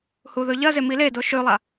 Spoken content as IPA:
h u ð ɵ ʎ ɐ z e m i l e d o ʃ ʉ lˠ a

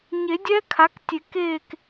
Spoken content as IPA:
ɲ e˨˩˦ dʲ ɛ˦˥ kʰ a˩˥ k tʲ e˨˩˦ k e˥˨ k

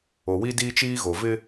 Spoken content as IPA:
o˨ w i˦ d iː˦ t͡ʃ iː˦ ɣ o˨ v ɪ˦

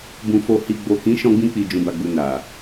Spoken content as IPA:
b ũ˨ f o˨ h i˨ ɡ͡b o˨ k ĩ˨˦ ʃ ɔ̃˧ ɡ͡b ĩ˧ k͡p i˨ d͡ʒ ũ˨ b a˨ ɡ͡b u˨ n a˨

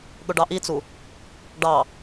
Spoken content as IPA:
ɠ ʊ ɖ ɑ ʔ i t͡s u | ɖ ɑ

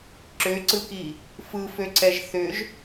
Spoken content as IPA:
ǁ ʏː ǀ ɯ k iː | f ɯ f ø ǀ ɛ ʒ θ ʏː ʒ

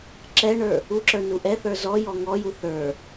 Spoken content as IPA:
ǁ ɛ ɳ ə˞ | u ǁ ə˞ n u ʔ ɛ θ ə˞ z ɔ j ɔ ŋ ɔ j u θ ə˞

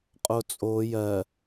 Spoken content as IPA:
qʼ o t͡sʼ o j ɜ

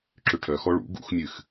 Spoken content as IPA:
ǁ ʏ ʈʰ œ x ɔ ɭ ṵ ɡ ṵ x mʲ ɨ x

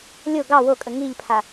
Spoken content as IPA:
lʲ o ɡ ɑ w o kʼ ə ŋ i ʎ pʰ a

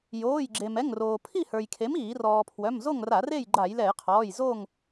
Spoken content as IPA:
j oː˩˧˩ j ɡ͡ǁ e˩ m ɛ˩˧˩ ŋ r oː˩ pʰ i˥˨ h ə˞˩ j kʰ e˩˥ m iː˧˩˧ r ɔː˩ pʰ w œ˩˧˩ m z o˥˨ ŋ r a˧˩˧ r e˥˨ j ɡ͡ǃ a˧˩˧ j l ɛ˧˩˧ j qʰ ɔː˩˧˩ j z o˥˨ ŋ

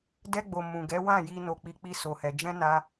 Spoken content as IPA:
d ɛ˧ ɡ͡b o˨ m ũ˨ ɡ ɛ˨˦ w ã˦˨ j i˧ n o˨ k͡p i˨˦ k͡p i˧ s o˧ h ɛ˧ d͡ʒ ɛ̃˦ n a˦

